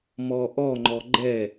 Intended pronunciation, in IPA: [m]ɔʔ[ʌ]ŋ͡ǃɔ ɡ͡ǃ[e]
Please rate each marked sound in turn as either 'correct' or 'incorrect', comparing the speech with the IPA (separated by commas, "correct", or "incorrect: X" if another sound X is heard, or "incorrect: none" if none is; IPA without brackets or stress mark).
correct, incorrect: ɔ, incorrect: ɛ